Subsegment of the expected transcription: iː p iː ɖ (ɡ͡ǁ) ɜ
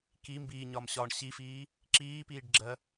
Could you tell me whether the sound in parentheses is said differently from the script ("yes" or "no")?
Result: no